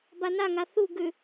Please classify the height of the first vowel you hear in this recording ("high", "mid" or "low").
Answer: low